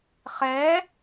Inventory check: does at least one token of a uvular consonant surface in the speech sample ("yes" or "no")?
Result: yes